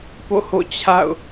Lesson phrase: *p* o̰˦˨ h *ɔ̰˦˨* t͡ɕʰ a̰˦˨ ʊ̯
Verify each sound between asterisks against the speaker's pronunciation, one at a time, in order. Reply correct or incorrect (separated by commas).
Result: correct, incorrect